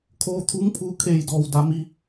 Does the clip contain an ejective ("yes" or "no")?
no